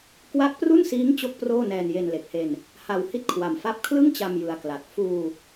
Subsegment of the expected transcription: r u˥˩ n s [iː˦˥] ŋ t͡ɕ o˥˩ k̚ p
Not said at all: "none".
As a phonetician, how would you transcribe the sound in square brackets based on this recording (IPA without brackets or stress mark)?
iː˦˥